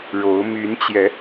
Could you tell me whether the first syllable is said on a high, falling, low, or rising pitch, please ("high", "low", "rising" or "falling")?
rising